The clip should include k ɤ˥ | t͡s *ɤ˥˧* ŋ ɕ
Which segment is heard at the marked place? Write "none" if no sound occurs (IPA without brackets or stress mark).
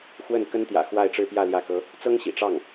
ɤ˥